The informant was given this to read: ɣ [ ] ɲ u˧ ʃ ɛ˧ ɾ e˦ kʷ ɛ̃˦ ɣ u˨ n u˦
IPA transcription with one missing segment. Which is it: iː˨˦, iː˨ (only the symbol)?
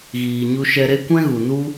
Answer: iː˨